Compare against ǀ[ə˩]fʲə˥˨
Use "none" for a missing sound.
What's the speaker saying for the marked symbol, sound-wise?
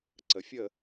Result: ə˩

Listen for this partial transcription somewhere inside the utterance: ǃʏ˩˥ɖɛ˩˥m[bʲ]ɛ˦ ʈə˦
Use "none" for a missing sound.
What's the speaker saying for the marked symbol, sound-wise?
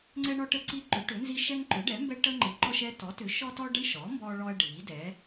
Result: b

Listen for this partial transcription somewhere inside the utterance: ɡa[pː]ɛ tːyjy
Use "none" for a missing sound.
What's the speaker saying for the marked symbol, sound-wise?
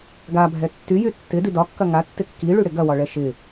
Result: bʱ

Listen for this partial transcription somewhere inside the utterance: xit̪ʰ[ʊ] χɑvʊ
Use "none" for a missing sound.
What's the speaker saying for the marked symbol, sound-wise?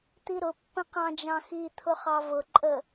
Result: ʊ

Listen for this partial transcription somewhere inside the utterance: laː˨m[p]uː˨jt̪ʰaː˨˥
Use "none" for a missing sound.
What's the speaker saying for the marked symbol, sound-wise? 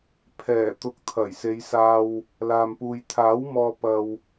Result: p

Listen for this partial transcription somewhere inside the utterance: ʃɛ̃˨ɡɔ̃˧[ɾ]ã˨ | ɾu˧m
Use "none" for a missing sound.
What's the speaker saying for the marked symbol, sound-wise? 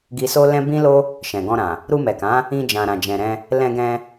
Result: ɾ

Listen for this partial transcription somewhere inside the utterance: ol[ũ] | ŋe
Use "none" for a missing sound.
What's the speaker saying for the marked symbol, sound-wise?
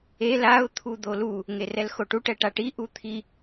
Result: u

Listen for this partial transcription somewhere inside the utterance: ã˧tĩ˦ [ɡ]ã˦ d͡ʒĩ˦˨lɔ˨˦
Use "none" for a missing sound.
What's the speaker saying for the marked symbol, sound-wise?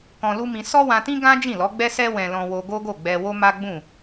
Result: ɡ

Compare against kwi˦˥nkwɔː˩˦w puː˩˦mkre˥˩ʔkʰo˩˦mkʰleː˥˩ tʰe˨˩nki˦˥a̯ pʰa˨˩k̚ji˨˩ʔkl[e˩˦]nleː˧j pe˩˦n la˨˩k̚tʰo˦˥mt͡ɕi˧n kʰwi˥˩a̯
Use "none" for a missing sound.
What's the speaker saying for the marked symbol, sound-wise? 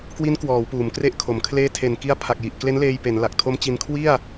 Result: e˦˥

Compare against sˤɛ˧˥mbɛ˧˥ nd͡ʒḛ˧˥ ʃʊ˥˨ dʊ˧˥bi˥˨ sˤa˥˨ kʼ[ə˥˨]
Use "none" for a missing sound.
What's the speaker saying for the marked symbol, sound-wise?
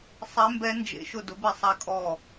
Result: ɔ˥˨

